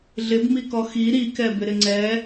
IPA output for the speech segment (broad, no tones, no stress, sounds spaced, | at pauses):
ɮ ɪ b m i k ɔ x i ɾ i k ɛ b ɪ ɾ ɪ ŋ͡ǀ ɛ